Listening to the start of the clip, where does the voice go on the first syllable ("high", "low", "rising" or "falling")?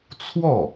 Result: falling